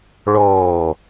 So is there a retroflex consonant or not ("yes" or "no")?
yes